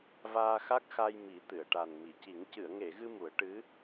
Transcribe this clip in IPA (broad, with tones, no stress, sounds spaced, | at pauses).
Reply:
v aː˧ x a˦˥ k̚ x a˧ j m i˨˩˦ t̪ ɨ˨˩˨ ə̯ ʈ a˨˩ n m i˨˩˨ c i˨˩˦ ŋ c ɨ˨˩˨ ə̯ ŋ e˨˩˨ ɣ ɨ˧ m u˨˩˦ ə̯ ʈ ɨ˧˥